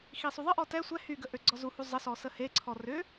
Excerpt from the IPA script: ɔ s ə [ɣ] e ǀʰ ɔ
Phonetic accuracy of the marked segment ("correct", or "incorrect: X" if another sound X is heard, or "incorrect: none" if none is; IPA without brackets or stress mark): incorrect: h